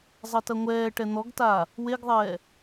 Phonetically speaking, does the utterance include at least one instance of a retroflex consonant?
yes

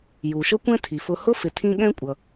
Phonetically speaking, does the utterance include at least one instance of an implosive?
yes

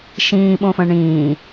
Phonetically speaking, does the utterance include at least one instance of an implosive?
yes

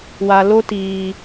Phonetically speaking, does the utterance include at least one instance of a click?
no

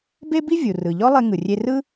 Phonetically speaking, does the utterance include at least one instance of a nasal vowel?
no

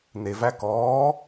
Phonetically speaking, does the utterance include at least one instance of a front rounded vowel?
no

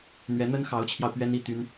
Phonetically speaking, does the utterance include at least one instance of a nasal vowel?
no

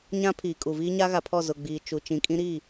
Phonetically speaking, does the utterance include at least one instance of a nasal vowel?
yes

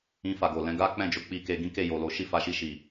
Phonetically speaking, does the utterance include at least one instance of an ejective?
no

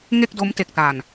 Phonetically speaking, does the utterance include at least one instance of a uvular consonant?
no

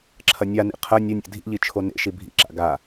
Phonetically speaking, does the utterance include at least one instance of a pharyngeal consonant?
no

